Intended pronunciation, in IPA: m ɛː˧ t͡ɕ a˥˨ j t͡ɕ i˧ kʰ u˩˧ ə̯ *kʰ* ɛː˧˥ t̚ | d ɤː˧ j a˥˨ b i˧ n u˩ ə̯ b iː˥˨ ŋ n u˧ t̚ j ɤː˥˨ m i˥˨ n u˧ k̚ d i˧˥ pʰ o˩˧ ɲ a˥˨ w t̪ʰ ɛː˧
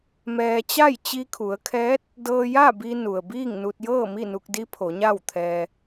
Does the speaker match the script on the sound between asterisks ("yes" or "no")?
yes